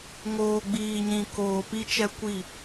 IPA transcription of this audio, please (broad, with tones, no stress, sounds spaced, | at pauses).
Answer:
ŋ oː˨ ɡ͡b iː˨ ɲ ĩ˨ k oː˨ p i˦ t͡ʃ ɛ˦ kʷ i˦˨